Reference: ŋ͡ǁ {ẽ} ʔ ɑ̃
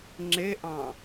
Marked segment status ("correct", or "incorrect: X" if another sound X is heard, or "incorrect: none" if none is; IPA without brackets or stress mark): incorrect: e